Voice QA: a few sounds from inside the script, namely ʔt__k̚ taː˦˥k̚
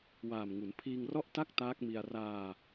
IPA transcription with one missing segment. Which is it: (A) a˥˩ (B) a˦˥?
A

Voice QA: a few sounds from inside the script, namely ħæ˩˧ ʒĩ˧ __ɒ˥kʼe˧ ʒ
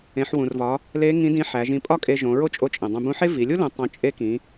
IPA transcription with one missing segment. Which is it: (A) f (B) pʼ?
B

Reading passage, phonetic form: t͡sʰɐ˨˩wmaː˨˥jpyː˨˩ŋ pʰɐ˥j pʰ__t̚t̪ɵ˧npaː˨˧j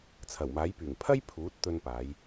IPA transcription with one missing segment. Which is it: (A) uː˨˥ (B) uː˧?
A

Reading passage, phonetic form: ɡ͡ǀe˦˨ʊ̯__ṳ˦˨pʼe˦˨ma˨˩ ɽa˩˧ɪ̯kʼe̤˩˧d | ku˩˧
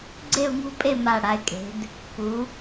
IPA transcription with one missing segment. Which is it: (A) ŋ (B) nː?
A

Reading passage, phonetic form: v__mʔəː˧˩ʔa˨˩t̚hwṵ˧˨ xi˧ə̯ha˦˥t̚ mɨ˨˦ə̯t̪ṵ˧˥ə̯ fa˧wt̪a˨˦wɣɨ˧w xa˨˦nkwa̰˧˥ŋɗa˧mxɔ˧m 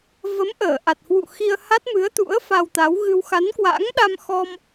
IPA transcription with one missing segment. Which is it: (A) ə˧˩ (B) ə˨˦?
B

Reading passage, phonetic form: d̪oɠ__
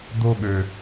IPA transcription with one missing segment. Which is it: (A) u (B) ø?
B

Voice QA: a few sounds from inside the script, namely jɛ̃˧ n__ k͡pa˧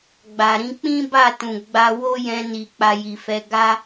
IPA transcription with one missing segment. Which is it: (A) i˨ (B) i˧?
A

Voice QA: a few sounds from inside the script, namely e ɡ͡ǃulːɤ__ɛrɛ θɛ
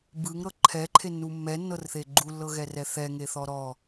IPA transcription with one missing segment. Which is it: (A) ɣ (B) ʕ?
A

